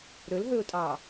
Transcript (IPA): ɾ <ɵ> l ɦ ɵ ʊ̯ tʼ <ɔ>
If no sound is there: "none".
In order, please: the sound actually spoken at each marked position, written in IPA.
ɵ, ɑ

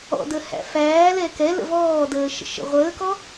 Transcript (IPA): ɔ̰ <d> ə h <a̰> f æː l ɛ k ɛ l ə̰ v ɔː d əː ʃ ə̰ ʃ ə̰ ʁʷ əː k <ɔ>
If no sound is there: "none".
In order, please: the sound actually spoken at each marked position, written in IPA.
d, æ̰, ɔ

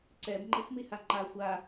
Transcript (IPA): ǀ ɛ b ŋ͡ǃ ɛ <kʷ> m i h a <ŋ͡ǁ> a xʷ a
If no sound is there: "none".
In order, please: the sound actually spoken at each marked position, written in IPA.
xʷ, ŋ͡ǃ

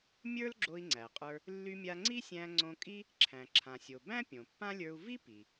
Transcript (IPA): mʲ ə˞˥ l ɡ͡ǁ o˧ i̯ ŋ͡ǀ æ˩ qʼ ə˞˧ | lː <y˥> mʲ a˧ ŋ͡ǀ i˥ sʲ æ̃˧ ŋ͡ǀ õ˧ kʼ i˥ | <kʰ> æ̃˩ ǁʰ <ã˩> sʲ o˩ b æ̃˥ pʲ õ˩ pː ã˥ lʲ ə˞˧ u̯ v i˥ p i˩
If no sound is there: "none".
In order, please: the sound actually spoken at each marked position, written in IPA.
y˧, ǁʰ, ã˩

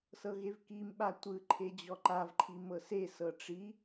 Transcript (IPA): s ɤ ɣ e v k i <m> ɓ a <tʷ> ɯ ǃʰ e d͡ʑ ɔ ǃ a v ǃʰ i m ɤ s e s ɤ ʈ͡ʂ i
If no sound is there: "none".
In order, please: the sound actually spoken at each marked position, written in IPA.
m, tʷ

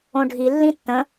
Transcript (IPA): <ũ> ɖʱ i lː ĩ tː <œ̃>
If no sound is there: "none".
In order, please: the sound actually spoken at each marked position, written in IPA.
õ, ə̃

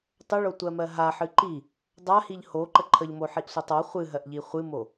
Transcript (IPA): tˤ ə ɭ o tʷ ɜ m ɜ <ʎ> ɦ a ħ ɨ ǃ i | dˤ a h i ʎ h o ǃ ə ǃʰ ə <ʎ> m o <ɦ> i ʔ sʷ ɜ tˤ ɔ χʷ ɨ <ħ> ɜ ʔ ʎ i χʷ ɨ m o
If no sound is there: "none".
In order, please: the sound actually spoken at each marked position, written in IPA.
none, ʎ, ħ, ɦ

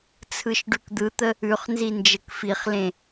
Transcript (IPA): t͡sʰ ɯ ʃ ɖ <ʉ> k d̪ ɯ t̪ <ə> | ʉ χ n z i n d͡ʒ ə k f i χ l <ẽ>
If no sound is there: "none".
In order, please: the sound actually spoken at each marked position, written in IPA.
ʉ, ə, ẽ

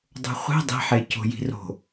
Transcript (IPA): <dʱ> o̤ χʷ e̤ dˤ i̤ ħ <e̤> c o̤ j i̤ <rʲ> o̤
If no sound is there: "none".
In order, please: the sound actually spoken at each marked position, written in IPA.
dˤ, e, r

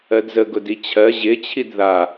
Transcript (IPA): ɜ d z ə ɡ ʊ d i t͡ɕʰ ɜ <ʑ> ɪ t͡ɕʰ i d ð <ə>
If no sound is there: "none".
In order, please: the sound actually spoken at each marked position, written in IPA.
ʑ, a

